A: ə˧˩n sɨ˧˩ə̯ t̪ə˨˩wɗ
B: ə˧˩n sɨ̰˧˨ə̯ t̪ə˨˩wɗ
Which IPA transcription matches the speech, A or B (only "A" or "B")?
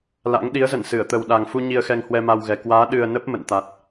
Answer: A